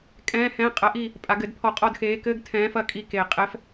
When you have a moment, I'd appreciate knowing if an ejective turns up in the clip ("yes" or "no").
yes